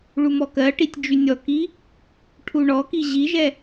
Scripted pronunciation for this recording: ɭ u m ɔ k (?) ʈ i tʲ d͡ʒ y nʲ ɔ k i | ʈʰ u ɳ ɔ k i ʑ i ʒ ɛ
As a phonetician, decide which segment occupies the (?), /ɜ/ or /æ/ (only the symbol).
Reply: ɜ